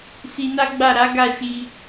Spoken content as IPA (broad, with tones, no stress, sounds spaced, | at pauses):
s i˧ n a˦ ɡ͡b a˦˨ ɾ a˨˦ ɡ a˦˨ ʃ i˧